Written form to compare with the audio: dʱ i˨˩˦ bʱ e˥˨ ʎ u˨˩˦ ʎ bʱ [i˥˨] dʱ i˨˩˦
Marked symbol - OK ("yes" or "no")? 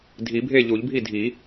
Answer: yes